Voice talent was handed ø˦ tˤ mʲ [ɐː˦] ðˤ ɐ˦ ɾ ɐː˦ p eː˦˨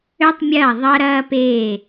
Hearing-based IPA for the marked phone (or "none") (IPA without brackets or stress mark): ɐː˦˨